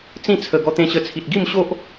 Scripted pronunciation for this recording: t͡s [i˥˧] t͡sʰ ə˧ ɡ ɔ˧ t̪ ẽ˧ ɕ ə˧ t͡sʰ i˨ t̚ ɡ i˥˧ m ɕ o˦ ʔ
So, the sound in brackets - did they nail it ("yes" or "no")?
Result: no